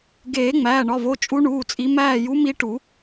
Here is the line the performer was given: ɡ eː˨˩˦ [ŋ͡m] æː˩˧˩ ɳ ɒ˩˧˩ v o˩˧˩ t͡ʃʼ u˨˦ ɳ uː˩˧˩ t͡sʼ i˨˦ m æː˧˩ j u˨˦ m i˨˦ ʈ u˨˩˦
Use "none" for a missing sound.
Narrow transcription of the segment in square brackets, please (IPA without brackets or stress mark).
ŋ͡m